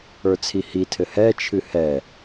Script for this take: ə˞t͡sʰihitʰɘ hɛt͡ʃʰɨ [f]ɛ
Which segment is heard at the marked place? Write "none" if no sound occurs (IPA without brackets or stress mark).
h